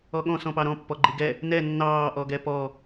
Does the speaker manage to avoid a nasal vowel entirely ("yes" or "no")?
no